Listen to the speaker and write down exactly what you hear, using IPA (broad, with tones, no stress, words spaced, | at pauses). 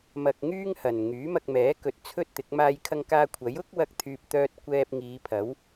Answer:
mɐ˧k̚ŋyː˥ŋ hɐ˨˩n ŋyː˨˥mɐ˧k̚mɛː˨˥kɵ˨t̚ t͡sʰɵ˥t̚t̪ɪ˨˥k̚ maː˧jkʰɐ˧ŋkaː˧ kʷʰɐ˨˥jʊ˥k̚wɐ˧k̚t̪ʰyː˨p̚ t̪œː˧t̚ kʷɛː˧p̚ŋiː˨˧pʰɐ˨˥w